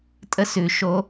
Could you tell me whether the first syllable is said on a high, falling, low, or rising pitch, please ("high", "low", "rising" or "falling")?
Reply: high